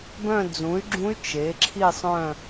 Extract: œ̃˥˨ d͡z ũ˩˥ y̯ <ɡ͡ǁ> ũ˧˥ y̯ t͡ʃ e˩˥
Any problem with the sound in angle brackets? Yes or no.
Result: no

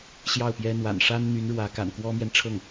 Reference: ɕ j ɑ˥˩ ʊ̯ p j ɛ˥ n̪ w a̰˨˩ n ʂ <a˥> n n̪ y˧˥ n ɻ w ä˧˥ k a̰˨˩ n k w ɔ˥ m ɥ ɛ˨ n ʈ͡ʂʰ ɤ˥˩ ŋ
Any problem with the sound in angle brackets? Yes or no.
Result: no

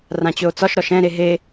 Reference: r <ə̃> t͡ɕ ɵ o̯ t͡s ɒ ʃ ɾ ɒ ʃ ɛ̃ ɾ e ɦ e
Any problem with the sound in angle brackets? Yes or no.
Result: yes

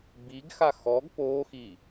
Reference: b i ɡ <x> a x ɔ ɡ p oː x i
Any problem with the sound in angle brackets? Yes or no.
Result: no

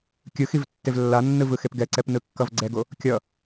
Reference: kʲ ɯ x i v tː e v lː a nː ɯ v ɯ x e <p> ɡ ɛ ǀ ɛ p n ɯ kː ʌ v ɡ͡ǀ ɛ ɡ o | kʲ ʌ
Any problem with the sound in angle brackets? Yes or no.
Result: no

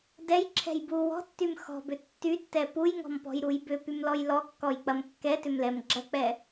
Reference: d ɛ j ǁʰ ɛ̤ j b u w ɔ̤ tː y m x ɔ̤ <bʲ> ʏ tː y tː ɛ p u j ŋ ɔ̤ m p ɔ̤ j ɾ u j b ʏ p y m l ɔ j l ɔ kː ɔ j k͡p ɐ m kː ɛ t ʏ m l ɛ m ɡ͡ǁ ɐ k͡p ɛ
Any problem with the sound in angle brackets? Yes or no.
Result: yes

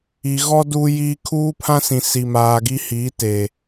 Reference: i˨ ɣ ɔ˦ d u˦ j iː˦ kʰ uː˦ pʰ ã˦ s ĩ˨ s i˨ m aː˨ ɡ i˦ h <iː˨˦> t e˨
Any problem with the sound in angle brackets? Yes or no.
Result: no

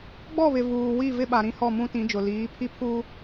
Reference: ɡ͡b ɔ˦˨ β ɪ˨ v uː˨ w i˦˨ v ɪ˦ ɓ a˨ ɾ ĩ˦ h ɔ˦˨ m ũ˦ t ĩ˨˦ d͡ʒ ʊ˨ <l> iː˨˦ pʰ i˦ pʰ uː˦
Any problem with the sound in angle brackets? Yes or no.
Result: no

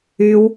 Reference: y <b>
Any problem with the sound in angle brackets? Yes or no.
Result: yes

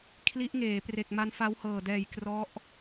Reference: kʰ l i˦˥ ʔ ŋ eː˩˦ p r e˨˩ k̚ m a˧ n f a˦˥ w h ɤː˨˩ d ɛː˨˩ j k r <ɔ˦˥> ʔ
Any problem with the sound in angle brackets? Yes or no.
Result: no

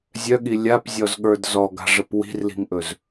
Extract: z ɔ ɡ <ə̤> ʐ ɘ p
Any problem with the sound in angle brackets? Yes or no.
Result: yes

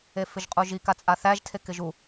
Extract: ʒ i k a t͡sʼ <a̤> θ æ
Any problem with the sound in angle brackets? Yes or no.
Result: yes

